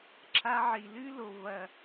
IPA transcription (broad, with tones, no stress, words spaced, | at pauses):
ǁʰa˧ʕi˨lɨ˦lo˨ vɐ˨